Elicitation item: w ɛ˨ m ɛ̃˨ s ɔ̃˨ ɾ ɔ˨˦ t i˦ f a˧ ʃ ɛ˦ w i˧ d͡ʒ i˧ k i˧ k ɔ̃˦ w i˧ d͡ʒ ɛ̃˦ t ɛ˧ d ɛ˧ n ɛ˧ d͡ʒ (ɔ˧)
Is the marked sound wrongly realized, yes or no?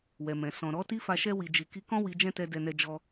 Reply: no